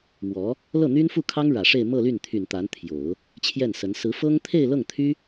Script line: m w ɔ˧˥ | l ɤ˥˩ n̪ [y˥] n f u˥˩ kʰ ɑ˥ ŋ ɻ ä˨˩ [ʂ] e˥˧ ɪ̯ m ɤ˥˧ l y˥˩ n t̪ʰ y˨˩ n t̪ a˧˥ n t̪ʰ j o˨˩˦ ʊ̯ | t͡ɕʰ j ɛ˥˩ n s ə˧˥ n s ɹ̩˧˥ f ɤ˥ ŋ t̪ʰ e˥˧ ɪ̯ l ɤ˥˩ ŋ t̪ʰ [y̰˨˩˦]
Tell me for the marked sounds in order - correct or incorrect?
correct, correct, incorrect: y˥

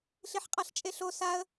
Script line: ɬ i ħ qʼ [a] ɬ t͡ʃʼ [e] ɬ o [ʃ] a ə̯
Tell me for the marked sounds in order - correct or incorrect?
correct, correct, incorrect: s

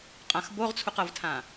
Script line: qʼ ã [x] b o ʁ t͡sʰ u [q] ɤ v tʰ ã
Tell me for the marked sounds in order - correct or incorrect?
correct, correct

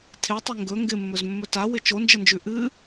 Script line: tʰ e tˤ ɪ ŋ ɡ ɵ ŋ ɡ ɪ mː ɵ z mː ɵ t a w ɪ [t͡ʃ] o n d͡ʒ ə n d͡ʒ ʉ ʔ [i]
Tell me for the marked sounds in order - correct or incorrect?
correct, incorrect: ɨ

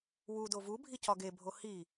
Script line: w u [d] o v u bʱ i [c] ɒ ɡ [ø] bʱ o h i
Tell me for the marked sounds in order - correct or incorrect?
correct, correct, incorrect: e

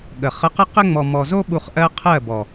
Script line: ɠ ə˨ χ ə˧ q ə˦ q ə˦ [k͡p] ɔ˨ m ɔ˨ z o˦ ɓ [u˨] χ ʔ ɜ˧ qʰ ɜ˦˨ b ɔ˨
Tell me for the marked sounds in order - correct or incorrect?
incorrect: ŋ͡m, correct

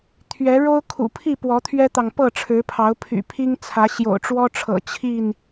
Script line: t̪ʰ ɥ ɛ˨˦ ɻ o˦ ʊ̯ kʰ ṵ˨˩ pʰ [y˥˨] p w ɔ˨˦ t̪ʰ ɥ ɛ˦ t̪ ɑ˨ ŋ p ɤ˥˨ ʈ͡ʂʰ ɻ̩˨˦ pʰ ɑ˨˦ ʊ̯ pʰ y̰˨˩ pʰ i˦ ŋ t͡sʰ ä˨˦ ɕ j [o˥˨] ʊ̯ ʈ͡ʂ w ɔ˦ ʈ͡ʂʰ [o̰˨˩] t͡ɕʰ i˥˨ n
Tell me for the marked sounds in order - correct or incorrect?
incorrect: i˥˨, incorrect: o̰˨˩, incorrect: ɤ̰˨˩

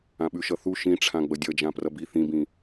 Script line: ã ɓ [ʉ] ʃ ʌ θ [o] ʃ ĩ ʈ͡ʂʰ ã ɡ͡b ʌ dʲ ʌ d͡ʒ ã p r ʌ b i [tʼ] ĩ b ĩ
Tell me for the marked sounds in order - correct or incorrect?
correct, incorrect: u, incorrect: θ

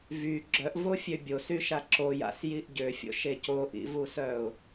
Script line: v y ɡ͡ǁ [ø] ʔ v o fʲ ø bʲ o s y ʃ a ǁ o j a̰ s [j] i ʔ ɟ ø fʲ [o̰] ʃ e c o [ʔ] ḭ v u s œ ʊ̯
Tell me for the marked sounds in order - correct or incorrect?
incorrect: œ, correct, correct, correct

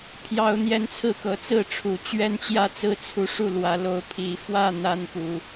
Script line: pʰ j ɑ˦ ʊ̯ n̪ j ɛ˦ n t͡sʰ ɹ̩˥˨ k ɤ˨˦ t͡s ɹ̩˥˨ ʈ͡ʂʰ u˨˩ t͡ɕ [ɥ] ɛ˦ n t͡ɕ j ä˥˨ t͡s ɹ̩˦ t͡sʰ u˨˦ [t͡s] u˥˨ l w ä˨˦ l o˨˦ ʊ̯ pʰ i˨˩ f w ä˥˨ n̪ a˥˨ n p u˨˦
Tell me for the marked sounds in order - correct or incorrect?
correct, incorrect: ʂ

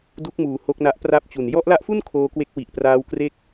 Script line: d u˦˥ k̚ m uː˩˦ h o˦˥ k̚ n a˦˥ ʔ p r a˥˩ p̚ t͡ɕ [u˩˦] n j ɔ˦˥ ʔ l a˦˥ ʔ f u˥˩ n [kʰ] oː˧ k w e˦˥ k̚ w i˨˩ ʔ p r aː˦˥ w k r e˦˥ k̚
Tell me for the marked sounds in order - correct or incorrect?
incorrect: u˨˩, correct

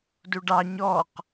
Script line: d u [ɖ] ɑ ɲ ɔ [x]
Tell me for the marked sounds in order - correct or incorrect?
correct, incorrect: q

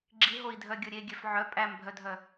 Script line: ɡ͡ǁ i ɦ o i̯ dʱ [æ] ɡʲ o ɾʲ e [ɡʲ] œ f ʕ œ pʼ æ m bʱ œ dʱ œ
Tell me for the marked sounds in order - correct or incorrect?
incorrect: œ, correct

